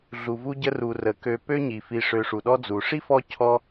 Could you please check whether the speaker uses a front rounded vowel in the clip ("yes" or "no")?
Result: yes